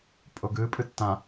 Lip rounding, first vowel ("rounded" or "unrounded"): rounded